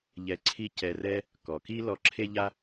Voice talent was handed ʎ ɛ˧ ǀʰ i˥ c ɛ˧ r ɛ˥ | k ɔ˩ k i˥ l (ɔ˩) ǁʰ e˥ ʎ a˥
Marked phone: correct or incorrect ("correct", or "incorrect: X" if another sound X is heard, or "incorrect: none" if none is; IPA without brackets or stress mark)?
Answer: incorrect: ɔ˧